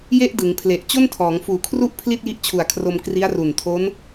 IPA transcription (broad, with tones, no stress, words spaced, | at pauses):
je˥˩ʔdɯ˩˦ŋpʰle˨˩ʔ t͡ɕo˥˩ntʰɔː˩˦ŋfuː˨˩kʰru˥˩ʔ pʰli˥˩t̚ji˦˥ʔt͡ɕʰu˨˩a̯kʰro˧m kri˦˥a̯ru˨˩ntʰo˦˥n